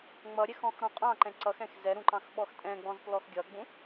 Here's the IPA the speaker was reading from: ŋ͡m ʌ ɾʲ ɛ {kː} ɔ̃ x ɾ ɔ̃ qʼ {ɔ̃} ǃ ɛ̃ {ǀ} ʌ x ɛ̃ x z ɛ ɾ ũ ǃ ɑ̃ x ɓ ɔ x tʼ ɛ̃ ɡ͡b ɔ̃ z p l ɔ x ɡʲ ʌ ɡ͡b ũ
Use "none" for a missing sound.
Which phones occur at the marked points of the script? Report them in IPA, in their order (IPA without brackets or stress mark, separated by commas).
x, ɑ̃, ǀ